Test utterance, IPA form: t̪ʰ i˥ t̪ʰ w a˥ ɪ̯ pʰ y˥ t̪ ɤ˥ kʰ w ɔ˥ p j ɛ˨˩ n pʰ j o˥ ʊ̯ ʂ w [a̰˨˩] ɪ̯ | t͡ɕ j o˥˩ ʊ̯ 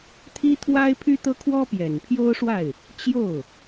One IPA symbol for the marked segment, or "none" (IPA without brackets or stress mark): a˥˩